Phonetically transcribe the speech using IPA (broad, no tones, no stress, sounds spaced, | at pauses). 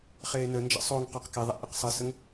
χ eː n ə n d͡ʒ ə̰ sˤ o ŋ q ɔ q k e ðˤ a̰ ʔ ɨ q sˤ ɨ s ə ŋ